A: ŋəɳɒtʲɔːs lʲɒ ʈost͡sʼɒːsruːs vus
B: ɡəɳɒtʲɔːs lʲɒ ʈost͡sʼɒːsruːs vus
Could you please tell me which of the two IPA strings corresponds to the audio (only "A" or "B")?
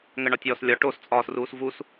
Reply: A